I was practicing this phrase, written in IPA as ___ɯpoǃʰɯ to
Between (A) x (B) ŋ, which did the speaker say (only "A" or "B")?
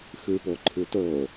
A